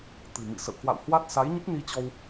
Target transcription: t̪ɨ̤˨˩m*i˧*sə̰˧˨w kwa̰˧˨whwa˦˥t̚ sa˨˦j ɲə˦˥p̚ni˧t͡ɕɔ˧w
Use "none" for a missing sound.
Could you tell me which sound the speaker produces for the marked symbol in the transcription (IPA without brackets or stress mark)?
ḭ˧˨